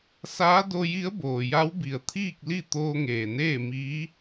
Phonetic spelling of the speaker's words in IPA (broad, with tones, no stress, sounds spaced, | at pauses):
s aː˧˥ d o˧ j i˧˥ ə̯ b oː˩ j a˧˥ w b i˩ ə̯ t̪ʰ iː˥˨ k̚ l i˥˨ t̪ oː˧ ŋ eː˩ n eː˥˨ m iː˧˥